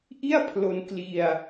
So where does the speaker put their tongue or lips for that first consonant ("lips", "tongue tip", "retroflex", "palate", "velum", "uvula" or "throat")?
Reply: throat